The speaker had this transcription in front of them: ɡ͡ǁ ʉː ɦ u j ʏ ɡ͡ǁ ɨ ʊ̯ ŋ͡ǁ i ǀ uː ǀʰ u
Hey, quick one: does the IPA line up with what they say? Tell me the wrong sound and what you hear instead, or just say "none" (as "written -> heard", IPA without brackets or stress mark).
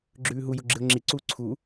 ʏ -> u